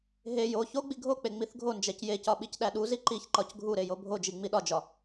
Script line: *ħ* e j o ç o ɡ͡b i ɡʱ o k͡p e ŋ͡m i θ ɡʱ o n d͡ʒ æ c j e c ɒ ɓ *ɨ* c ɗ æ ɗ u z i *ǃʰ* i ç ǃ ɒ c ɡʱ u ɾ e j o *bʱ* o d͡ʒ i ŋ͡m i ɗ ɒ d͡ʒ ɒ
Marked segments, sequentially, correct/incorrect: incorrect, incorrect, incorrect, correct

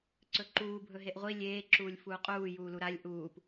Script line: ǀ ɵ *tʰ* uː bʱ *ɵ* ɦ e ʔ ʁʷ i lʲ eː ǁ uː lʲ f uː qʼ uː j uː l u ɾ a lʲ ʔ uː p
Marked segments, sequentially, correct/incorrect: incorrect, correct

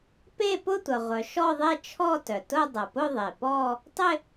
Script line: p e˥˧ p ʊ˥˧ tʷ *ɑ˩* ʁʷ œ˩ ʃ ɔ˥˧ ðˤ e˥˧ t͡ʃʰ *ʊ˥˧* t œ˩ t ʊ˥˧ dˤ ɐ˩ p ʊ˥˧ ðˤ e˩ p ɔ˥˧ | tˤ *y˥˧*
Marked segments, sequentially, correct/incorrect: incorrect, incorrect, incorrect

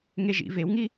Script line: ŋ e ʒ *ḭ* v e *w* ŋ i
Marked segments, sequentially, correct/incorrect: correct, correct

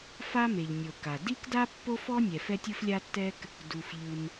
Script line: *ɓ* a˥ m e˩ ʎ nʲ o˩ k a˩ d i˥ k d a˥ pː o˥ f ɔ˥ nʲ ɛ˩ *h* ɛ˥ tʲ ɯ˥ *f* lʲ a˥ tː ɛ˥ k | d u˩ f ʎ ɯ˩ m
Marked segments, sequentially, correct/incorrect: incorrect, incorrect, correct

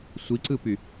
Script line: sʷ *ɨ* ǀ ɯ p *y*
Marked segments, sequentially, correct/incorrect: incorrect, correct

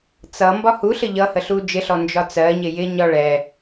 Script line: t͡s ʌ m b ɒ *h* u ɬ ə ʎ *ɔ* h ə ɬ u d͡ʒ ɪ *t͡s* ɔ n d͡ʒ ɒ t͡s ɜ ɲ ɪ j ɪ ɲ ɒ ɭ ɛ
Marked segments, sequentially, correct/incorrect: correct, incorrect, incorrect

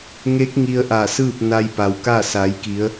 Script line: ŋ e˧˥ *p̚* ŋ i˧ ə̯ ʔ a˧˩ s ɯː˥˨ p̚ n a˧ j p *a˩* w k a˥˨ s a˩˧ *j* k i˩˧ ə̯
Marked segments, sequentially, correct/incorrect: incorrect, correct, correct

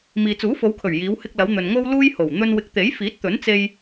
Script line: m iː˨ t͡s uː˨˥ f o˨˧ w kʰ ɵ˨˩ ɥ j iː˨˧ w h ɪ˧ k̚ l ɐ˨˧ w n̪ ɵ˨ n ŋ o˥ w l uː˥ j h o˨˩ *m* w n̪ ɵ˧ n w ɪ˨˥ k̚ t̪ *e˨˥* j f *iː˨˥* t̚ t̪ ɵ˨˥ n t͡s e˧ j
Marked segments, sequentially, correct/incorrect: incorrect, correct, correct

